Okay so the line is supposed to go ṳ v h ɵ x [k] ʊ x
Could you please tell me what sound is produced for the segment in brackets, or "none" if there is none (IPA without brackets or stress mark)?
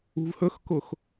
k